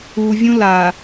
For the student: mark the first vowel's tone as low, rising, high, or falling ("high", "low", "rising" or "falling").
low